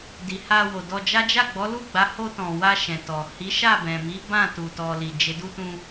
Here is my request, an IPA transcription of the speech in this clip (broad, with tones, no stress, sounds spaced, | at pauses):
d i˨ h a˧ w o˨ d ɔ˧ d͡ʒ a˦ d͡ʒ a˦˨ ɡ͡b ɔ˨˦ l u˦˨ ɡ͡b a˨˦ h o˧ t ɔ̃˨ w a˧ ʃ ɛ̃˨ t ɔ˨ h i˨˦ ʃ a˦˨ b ɛ̃˨ m i˨˦ b ã˦˨ t u˨ t ɔ˨ l i˨ d͡ʒ e˨˦ d u˧ t ũ˧